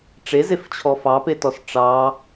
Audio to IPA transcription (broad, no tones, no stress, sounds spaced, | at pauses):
ʈ͡ʂ e z e f t͡ɕʰ ɔ f ɑ p e t ɔ s ʈ͡ʂ ɑ